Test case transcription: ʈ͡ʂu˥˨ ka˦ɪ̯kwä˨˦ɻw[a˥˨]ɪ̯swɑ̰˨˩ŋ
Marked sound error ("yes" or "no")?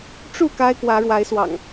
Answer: yes